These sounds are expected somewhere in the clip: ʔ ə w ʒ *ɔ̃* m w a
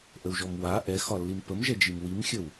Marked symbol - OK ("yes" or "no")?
no